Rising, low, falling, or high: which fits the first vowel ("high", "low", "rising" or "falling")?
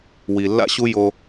low